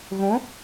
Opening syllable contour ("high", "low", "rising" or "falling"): rising